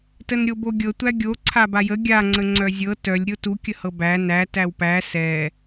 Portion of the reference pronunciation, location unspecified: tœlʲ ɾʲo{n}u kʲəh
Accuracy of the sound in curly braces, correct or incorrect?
incorrect